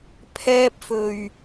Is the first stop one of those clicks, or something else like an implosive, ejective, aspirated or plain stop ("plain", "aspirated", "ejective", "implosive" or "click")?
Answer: aspirated